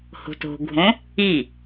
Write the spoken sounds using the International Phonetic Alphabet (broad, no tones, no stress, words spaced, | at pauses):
ho̤to̤ɡʱõ | i